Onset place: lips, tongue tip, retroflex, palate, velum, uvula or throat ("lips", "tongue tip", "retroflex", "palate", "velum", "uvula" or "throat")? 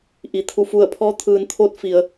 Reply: throat